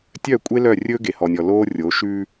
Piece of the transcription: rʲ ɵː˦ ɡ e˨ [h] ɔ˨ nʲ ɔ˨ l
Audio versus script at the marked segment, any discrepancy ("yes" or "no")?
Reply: no